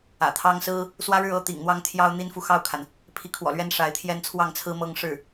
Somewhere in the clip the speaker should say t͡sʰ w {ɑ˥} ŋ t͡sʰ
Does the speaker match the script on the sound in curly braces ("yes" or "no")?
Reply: no